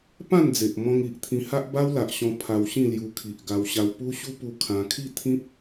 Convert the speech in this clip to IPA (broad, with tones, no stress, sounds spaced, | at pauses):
p ã˥˧ n d͡z e˨ ʔ m ɔ̃˧ ŋ i˨ ʔ t̪ʰ ĩ˧ h a˦ ʔ b a˦ w l a˨ ʔ ɕ ɔ̃˧ pʰ a˧ w ɕ ĩ˥˧ l j u˧ kʰ i˨ ʔ ɡ a˧ w ɕ a˧ w p u˦ ɕ u˦ p u˧ kʰ ã˧ kʰ i˥˧ t̪ʰ ĩ˦ p̚